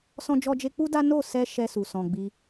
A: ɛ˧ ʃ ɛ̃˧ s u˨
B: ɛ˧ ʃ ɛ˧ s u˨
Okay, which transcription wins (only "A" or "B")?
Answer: B